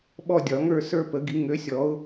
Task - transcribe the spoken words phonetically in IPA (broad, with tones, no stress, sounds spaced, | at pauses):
ɓ ɔ˥˧ dʲ ɒ˨˩˦ ŋ ə˞˥˧ s ə˞˥˧ p ə˨˩˦ ɡ i˨˩˦ ŋ ø˨˥ sʲ ɔ˨˥ ʊ̯